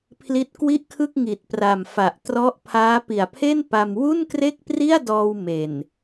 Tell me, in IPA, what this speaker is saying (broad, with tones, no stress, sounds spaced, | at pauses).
pʰ l i˦˥ t̚ k w i˥˩ ʔ kʰ ɯ˥˩ k̚ ŋ i˨˩ t̚ p r a˨˩ m f a˨˩ ʔ t r ɔ˦˥ ʔ pʰ aː˦˥ p i˨˩ a̯ pʰ e˥˩ n p a˧ m w u˥˩ n k r e˥˩ k̚ p r i˥˩ a̯ d ɔː˧ w m e˨˩ n